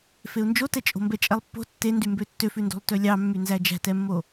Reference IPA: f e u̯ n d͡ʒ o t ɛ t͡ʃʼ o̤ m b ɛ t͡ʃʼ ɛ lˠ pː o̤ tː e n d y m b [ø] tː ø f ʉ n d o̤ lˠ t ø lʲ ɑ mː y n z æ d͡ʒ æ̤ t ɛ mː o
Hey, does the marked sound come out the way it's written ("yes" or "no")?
yes